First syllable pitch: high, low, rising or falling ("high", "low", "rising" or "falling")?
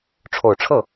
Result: low